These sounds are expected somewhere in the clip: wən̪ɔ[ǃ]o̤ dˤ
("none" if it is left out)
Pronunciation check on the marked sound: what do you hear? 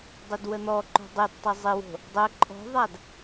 ǃ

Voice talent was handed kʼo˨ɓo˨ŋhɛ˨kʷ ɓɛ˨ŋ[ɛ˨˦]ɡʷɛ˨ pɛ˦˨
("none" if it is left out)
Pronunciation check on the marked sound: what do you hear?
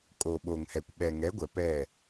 ɛ˨˦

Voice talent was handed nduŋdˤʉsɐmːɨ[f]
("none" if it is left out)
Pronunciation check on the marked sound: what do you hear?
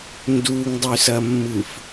f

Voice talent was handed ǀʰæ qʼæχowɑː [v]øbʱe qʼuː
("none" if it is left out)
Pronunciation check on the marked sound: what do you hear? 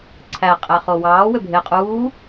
w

